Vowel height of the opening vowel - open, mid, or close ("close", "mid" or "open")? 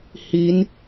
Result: close